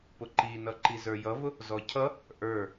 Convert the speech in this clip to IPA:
p ʊ ǃ i n ʌ ǃ i z ə˞ j ʌ v ʊ | z ɔ cʰ ʌ | ʔ ə˞

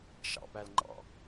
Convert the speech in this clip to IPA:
ʃ ɑ̰ p æ l ŋ͡ǃ ɑ̰

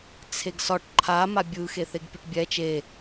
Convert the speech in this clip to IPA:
t͡sʰ e ɡ s ɒ ʈ ǃʰ a m a bʲ ɯ x e θ e ɡ pʲ ɯ ʈ bʲ ɛ t͡ʃ e

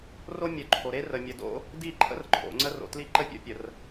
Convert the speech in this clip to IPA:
r o˦ mʲ œ˨ ǃʰ o˨ ɾ e˦ r ə˨ mʲ ə˨ d o̰˦ | d i˦˨ ǃʰ ə̰˦ r ǃʰ o̰˨ ŋ͡ǀ ə˦ r o̰˨ t l i˦ ǃ ə˦ pʲ o̰˦˨ pʲ ə˨ r

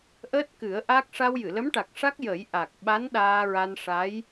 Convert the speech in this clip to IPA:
ʔ əː˦˥ t̚ k ɨ˨˩˦ ə̯ ʔ a˦˥ k̚ ʂ a˧ w j ɨ˨˩˨ l ə˧˥ m ʈ a˨˩ k̚ ʂ a˦˥ k̚ j ə˨˩˦ j ʔ a˨˩ k̚ ɓ a˧˥ n ɗ aː˧ ɹ a˧ n ʂ a˧˥ j

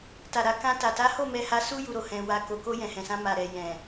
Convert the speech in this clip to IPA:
t a˨ ɾ a˨ k ã˧ t a˨ t a˨˦ h o˦˨ m ɛ˧ h a˧ s u˦ j u˧ ɾ o˨ h ɛ̃˧ w a˧ k o˨ k o˧ j ɛ̃˨ h ɛ̃˨ s ã˧ m a˨ ɾ ɛ˨ j ɛ̃˨

